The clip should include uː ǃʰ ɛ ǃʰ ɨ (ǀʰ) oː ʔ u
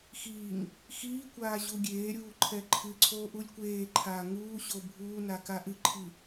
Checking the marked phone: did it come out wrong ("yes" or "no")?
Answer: no